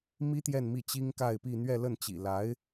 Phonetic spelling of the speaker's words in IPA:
mi˥t̪jɛ˥˧n mi˥˩t͡ɕi˥ŋka˥˧ɪ̯pi˥˧ n̪ɥɛ˥˧lə˥˩nt͡ɕḭ˨˩ la˧˥ɪ̯

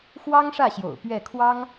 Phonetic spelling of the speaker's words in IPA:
xwɑ˥ŋʂä˥˩ɕjo̰˨˩ʊ̯ pɥɛ˥˩ kʰwɑ˥ŋ

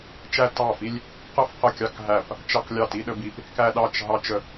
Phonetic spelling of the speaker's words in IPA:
t͡ʃæ˧tɑ˧˩fi˧lʲ | qə˧fqə˧˩ kʲɑ˧kɦæ˧˩p | t͡ʃɑ˧klʲɑ˧˩ ti˧ɗə˧bi˧p | kæ˧ ɗɑ˧˩t͡ʃ ɦɑ˧t͡ʃə˧˩

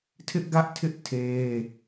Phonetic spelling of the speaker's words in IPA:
tʰɪ˦ʔɡä˦ʔtʰɪ˦ʔ tʰe˦

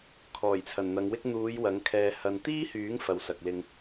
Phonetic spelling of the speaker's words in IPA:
kʰɔː˨˩jt͡sʰɐ˨˩nn̪ɐ˨˧ŋwɪ˥k̚ n̪uː˨˧j wɐ˨˥ŋkʰɛː˧ hɐ˧n t̪iː˥hyː˨˥ŋ fɐ˨wsɐ˨k̚ lɪ˧ŋ

